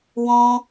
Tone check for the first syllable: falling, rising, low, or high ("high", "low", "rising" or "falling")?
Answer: high